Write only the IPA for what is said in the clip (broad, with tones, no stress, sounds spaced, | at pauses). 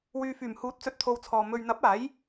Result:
w yː˨ f yː˨˩ m h uː˨˥ t̚ t͡s ɵ˨˥ t̚ t̪ʰ o˨ w t͡sʰ ɔː˨ m ɵ˨ ɥ n̪ ɐ˨˥ p̚ aː˨˥ j